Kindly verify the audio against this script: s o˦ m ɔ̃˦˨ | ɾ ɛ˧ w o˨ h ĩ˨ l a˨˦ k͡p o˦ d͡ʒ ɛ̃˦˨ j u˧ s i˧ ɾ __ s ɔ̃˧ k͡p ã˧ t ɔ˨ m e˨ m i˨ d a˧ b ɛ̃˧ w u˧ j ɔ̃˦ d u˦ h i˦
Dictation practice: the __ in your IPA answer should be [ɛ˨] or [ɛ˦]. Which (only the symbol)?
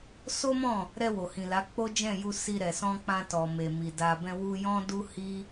ɛ˨